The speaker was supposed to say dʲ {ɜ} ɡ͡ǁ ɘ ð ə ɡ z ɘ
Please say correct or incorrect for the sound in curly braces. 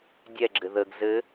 incorrect